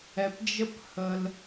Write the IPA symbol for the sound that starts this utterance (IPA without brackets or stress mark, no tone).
ɛ